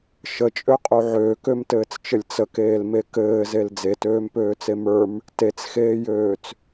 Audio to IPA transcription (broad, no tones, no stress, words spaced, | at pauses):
ʃət͡ʃʼøqʼu ʕøːkømtɘːt͡st͡ʃɘlʲ t͡səkeːlme kɘːzel d͡zetøːmpøːt͡se mə˞m | tet͡sxeːjøːt͡s